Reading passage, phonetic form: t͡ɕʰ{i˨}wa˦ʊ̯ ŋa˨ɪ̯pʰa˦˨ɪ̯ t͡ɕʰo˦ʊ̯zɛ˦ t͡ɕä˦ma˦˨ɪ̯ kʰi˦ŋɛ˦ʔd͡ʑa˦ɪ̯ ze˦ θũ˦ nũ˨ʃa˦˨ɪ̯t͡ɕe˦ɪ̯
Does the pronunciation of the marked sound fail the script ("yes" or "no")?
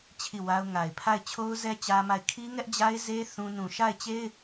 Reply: yes